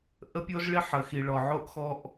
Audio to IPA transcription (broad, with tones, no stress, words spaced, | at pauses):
ʔə˦pʲo˦zɭi˦ħ ə˨˦xi˨ ɭɔ˨ʕo˦ʔxɔ˦ʔ